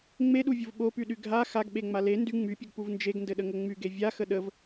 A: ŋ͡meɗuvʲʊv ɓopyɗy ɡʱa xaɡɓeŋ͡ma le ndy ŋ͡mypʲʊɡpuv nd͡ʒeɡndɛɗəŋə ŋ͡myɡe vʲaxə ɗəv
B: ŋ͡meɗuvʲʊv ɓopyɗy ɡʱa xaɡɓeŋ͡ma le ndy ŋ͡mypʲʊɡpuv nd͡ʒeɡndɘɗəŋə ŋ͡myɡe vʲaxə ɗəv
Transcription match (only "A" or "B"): B